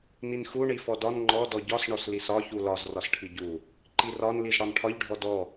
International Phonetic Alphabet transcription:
n i n x u ɳ i f ɔ d ɒ n ŋ͡ǃ ɔ d ɔ ɟ ɒ s ɳ ɔ s l i s ɒ ç u l ɒ z r ɒ s ʈʰ i ɟ u | ǃ i r ɒ n l i z ɽ ɒ n ʈʰ ɒ ʎ ɖʱ ɔ d ɔ

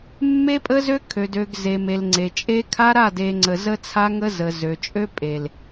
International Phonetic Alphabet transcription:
mː e˦ pʼ ə˦ z ø˦ kʰ ø˨ d ø˨ ɡ z e˨ m e˨ l ŋ͡ǀ e˨ t͡ʃʼ e˦ kʰ a˦ ɾ a˦˨ d e˨ ŋ͡ǀ ə˨ z ə˦ t͡sʰ a˦ ŋ ə˦ z ə˨ z ø˨ t͡ʃʼ ø˦ pʼ e˨ l

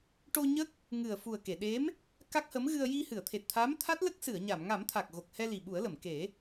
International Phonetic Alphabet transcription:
ʈ o˧ ɲ ə˦˥ k̚ | ŋ ɨ˨˩ ə̯ f u˨˩ ə̯ k e˨˩˨ ɗ e˧˥ m | k a˦˥ k̚ h ə˧˥ m ɣ ɨ˧ ə̯ j i˧ h ɨ˨˩˨ ə̯ t̪ʰ e˨˩ t̚ t̪ʰ a˧˥ m t̪ʰ a˦˥ t̚ l ə˦˥ k̚ s ɨ˨˩˨ ə̯ ɲ a˨˩˨ m ŋ a˨˩˦ m t̪ʰ a˨˩ k̚ ɣ o˨˩ k̚ h ɛ˧ l i˨˩ ɓ u˨˩˦ ə̯ l ə˨˩˨ m k e˨˩˦

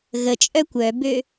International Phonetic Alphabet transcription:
ɣ ə t͡ʃʼ œ kʷ œ b ø

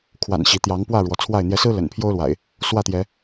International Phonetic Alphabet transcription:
kʰ w a̰˨˩ n ɕ i˨˦ t̪ j ɑ˨˦ ŋ p w ä˥˨ ɻ w ɔ˨˦ t͡sʰ w a˥˨ ɪ̯ n̪ j ɛ˨˦ s ɹ̩˦ l ə̰˨˩ n pʰ j o˦ ʊ̯ l w a̰˨˩ ɪ̯ | s w ä˥˨ t̪ j ɛ˨˦

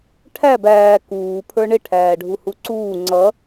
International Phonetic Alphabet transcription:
ʈʰ æ b æː k uː pʰ ə˞ ɳ ɪ ʈʰ æː ɖʱ u h u ǀ uː ŋ͡ǀ ʌ

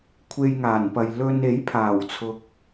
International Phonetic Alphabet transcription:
kʷʰ e˧ j ŋ aː˨˩ n p ɐ˨ j l ɵ˧ n e˨˥ j pʰ aː˨˩ w t͡sʰ ʊ˨ k̚

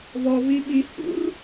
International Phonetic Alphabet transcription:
v ɔ v i ɓ i h ṵ r

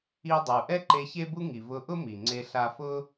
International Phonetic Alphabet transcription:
i˧ dˤ u˩ ʔ ɛ˥ ǃ e˧ ç e˥ b u˥ ŋ i˩ v ʊ˧ ʔ ʊ˥ m i˩ ŋ͡ǀ e˧ ɬ a˧ f ʊ˥

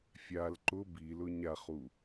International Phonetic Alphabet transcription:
fʲ a l ǃ ʊ b i l ʊ ɲ a χ u

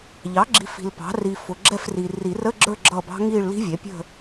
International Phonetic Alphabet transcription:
ʎ ɑ˩˥ ɡ͡ǁ i˨ f i̤˨ l p ɑ̤˩˥ r i˨ f ʊ˨ ɡ͡ǁ ɛ˦˨ f r i˨ r i˨˩˦ r ə˧˥˧ ɡ͡ǁ ə˞˦˨ ɡ͡ǁ ʌ˦˨ b ɑ̤˦˥ ŋ i˦˨ ɭ l i̤˦˥ vʲ ɛ˩˥ pʲ ə̤˦˨

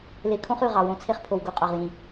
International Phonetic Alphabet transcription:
l e˨ kʰ õ˦ χ ʉ˨ ʁ ɑ˨ w õ˦ t͡sʰ e˦ χ pʰ o˨ w ɡ o˦ qʼ ɑ˨ ʁ j ĩ˨

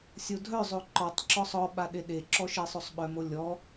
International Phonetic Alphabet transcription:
sʲ o dʱ œ zˤ o ǃ ɔ tˤ ǁ ɔ sˤ ɔ ɓ a ɗ e ɗ e ǁ ɔ ʃ e sˤ o sˤ ɓ œ m o lʲ ɔ

